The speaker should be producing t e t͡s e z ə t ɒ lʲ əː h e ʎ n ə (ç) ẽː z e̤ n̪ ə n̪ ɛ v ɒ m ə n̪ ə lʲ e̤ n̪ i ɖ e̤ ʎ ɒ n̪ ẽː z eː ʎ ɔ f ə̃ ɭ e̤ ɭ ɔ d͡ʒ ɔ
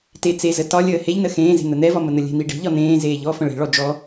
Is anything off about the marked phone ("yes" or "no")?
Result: yes